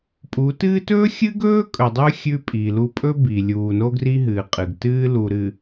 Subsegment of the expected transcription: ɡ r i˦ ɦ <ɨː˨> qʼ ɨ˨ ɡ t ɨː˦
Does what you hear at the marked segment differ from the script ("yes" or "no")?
no